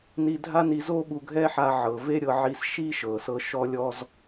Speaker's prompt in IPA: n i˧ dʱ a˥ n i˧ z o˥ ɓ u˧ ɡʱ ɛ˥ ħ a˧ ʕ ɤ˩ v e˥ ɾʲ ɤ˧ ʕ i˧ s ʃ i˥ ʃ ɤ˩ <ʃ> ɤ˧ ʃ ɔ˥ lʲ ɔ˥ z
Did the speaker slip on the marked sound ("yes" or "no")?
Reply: yes